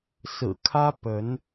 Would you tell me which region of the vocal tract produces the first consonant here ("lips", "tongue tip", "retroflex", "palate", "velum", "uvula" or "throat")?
tongue tip